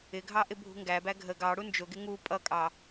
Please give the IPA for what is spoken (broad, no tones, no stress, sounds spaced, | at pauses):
ɪ ɡʱ ɑ ʔ ɪ bʱ ṳ ŋ ɡ æ b æ ɡʱ ə ɡ ɑ ɽ u n d͡ʒ ʊ ɡ ɪ ŋ u pʼ ʌ kʼ ɑ